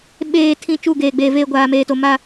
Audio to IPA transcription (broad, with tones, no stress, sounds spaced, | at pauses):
ɓ eː˨ tʰ ĩ˨ t͡ʃ u˦˨ ɡ eː˨ ɡ͡b eː˨ v eː˦ ɡʷ aː˨ m eː˨ t o˨ m a˦